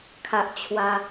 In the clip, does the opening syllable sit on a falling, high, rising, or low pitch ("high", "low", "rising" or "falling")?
high